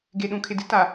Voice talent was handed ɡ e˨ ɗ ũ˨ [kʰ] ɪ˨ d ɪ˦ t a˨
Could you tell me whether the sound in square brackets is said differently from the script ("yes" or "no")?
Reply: no